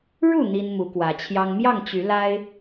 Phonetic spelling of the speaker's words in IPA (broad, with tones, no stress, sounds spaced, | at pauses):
ɻ u˥˨ n̪ i˦ n m u˨˦ k w ä˨˦ t͡ɕʰ j ɑ˦ ŋ m j ɑ˥˨ ŋ t͡ɕ y˨˦ l a˦ ɪ̯